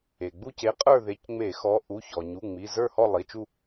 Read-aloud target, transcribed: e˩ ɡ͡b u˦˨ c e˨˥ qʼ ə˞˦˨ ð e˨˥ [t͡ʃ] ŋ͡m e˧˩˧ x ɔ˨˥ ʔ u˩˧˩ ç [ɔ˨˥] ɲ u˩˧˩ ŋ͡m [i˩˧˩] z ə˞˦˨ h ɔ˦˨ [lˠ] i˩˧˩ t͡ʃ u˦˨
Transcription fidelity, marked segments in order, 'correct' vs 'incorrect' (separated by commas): incorrect, incorrect, correct, correct